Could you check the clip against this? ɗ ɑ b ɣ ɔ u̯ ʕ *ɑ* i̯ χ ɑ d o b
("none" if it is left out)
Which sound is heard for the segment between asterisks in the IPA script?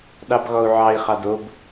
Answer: ɑ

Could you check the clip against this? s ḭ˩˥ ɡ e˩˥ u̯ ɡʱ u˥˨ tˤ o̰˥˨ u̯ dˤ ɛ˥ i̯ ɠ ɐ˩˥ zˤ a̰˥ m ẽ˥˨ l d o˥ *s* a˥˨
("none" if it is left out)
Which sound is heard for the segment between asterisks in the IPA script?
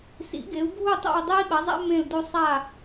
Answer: sˤ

